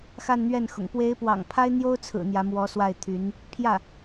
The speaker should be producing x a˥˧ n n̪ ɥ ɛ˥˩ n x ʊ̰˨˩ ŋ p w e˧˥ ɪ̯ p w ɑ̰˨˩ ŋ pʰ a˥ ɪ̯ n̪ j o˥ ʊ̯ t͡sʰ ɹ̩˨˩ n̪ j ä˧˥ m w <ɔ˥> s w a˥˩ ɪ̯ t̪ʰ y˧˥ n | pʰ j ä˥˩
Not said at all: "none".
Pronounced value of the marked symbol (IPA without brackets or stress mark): ɔ˧˥